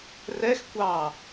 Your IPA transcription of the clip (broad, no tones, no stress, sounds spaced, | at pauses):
r ɛ x kʷ ɑ